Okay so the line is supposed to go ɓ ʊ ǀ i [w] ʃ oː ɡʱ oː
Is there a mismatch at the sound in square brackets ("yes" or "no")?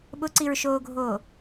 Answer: yes